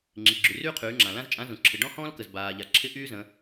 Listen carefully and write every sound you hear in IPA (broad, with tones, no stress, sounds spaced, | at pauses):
ŋ͡ǁ i˩ ɡ͡ǁ y˩ r yː˥ qʰ yː˩˧ ŋ͡ǁ ã˩ l ã˥ z t͡ʃʼ ã˧˥ z ũ˩ ǁʰ ɪ˩ ɖ ɔ̃˥ h ɔ̃ː˥ l k ə˩ z b aː˩ ʎ a˩ ǁʰ ɪ˧˥ ʔ yː˥ z ə̃˩˧